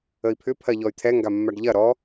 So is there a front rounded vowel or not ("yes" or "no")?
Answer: yes